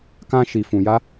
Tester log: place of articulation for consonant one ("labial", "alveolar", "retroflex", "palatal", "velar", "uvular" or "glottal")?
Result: velar